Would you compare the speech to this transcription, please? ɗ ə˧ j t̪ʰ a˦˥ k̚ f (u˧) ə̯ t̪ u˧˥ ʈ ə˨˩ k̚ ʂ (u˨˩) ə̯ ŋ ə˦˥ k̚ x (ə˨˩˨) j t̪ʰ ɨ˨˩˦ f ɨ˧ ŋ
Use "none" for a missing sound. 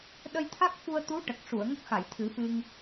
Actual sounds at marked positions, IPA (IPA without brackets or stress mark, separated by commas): u˧, u˨˩˨, a˨˩˨